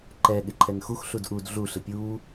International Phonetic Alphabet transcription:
ǃɛ ɠɪǃʰɛnxux ɬudʔud ɮu ɬɪpʲuː

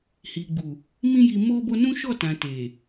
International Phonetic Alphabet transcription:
hi˨ɡ͡bu˨ | mĩ˦ji˧ mo˧bo˧ nũ˦ʃɔ˦˨tã˨ te˨

